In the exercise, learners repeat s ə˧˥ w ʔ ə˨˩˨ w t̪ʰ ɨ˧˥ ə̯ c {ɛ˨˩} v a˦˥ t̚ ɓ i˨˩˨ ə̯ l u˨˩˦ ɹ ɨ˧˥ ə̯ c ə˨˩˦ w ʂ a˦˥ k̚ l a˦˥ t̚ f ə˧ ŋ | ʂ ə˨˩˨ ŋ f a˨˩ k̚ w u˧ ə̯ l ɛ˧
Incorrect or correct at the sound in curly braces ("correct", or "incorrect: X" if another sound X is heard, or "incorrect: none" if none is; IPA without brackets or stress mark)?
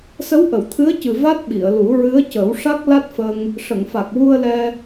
incorrect: ɨ˨˩